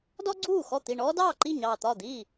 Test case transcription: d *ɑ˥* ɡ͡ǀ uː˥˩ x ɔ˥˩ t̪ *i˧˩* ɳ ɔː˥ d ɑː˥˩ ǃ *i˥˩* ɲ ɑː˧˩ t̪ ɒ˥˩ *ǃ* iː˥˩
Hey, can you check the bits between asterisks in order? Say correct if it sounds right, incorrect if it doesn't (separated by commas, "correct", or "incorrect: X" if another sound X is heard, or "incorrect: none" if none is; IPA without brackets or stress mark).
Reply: incorrect: ɔ˥, correct, correct, incorrect: d̪